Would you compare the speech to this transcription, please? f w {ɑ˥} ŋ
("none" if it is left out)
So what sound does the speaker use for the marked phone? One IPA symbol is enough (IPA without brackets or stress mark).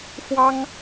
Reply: ɑ˥